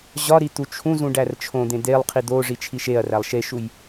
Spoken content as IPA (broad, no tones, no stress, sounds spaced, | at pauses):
ʑ ɒ ɾ i t̪ u t͡ʃʰ ũ z ũ ɖ æ r t͡ʃʰ õ d̪ ẽ d̪ e lˠ qʰ i d̪ o ʐ i t͡ʃʰ i ʃ e ɐ̯ r æ lˠ ʃ e ʃ u j